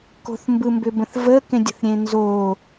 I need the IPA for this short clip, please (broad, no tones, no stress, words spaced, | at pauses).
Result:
ko̤θmbɯmbʏbə̃θ vəkẽdʲə̤θɾʲẽ nzo